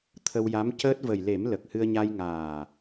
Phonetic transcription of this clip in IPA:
t̪ʰ ə˧ w j a˧˥ m c əː˦˥ t̚ v ə˨˩ j l e˨˩˦ m l ə˨˩ k̚ h ɨ˧ ə̯ ɲ a˧ j ŋ aː˨˩

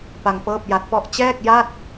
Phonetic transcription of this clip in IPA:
p a˧ ŋ p ɤː˥˩ p̚ j a˦˥ t̚ p ɔ˥˩ ʔ t͡ɕ ɛː˥˩ k̚ j a˥˩ t̚

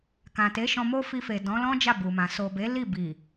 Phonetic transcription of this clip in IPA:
k ã˨ t e˨˦ ʃ ɔ̃˧ m o˦ f i˧ f e˨ d ɔ̃˨˦ l ɔ̃˦ d͡ʒ a˦˨ b u˨ m ã˨ s o˨ b e˨˦ l i˦˨ b i˨

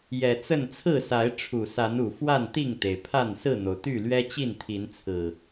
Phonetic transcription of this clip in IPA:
j ɛ˨˩ t͡s ə˥˨ n t͡sʰ ɹ̩˥˨ s a˨˦ ɪ̯ ʈ͡ʂʰ u˨˩ s a˨˦ n u˨˩ f w a˥˨ n t̪ i˥˨ ŋ t̪ e˩ ɪ̯ pʰ a˥˨ n s ɹ̩˥˨ n̪ o˩ ʊ̯ t̪ y˥˨ l ɥ ɛ˦ t͡ɕ i˥˨ n t̪ʰ i˨˦ n t͡sʰ ɹ̩˨˩

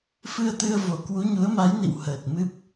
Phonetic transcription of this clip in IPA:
f ɨ˧ ə̯ t̪ ɨ˧ ə̯ v o˧˩ k w u˨˦ ɲ u˨˦ ə̯ m a˨˦ j n ḭ˧˨ w h əː˨˩ t̚ m ɨ˦˥ p̚

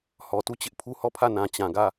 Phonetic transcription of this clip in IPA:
h ɔ˨ t u˦˨ t͡ɕ ɪ˦ ʔ pʰ u˦ h ɔ˦˨ pʰ ä˦˨ n ã˨ t͡ɕ ã˨ ɡ ä˦˨

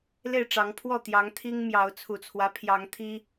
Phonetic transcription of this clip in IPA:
l e˥˨ ɪ̯ ʈ͡ʂ ɑ˨˦ ŋ pʰ w ɔ˥˨ t̪ j ɑ˨˦ ŋ t̪ʰ i˦ ŋ m j ɑ˨˦ ʊ̯ t͡sʰ u˨˩ t͡sʰ w ä˦ pʰ j ɑ˨˦ ŋ t̪ʰ i˦

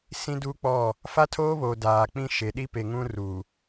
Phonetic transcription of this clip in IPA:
s ĩ˦ d uː˦ k͡p ɔ˦˨ | f a˦ tʰ oː˦ β oː˨ d aː˨ k͡p ĩ˦ ʃ e˨ ɗ i˦ p e˨ ŋ ũ˦ r u˨

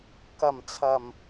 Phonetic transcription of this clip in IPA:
k ɐ˨˩ m t͡sʰ ɐ˨˩ m

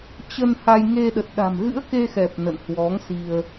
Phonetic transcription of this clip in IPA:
t͡ɕ ə˧ n h a˧ j ŋ e˧ ɗ ə˨˩ t̚ ɗ a̤˨˩ m ɣ ɨ̰˧˥ ə̯ k e˧ x ɛ˨˩ p̚ n ə̰˧˨ n h w ɔ˨˦ ŋ s i˧ ə̯

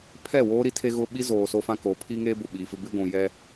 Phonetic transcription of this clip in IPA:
pʰ ɛ˦˨ w oː˦ ɾ i˦ tʰ e˦ ɣ ʊ˦ ɓ i˦ z oː˨ s o˦ f ã˦ k o˨˦ pʰ i˦ ŋ e˦ b ʊ˨ ɓ i˨ f ɪ˦ b ɪ˦ ɡʷ ũ˨ j ɛ˦

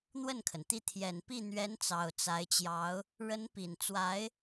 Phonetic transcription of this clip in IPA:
n̪ w ə˥˩ n kʰ ə˩ n t̪ i˥˩ t̪ʰ j ɛ˨˩ n p i˥˩ n̪ ɥ ɛ˧˥ n t͡s ɑ˨˩ ʊ̯ t͡s a˧˥ ɪ̯ t͡ɕ j ɑ˧˥ ʊ̯ | ɻ ə˧˥ n p i˨˩ n t͡s w a˧˥ ɪ̯

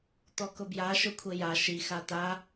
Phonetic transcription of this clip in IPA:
t̪ ɔ k ʊ b j a ʃ ʊ kʷʰ e j a ʃ i x a t̪ a

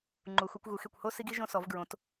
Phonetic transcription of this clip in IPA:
ŋ͡ǃ u˩˧ x u˩˧ kʷ ɣ u˩˧ x e˧˩ kʷ h o˥˧ s i˧ ɡ i˧ ʒ õ˧ s ɔ˩˧ v ɡ ɹ õ˩˧ t

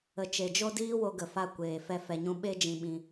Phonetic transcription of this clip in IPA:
ə˨ t͡ʃ e˨ d͡ʒ o˦ d iː˦ w o˧ ɡ ə˨ f a˧ kʷ eː˨ f ɛ˧ f ɛ˧ ɲ ũ˦ ɓ e˦ d͡ʒ ĩ˧ ɓ ĩ˧

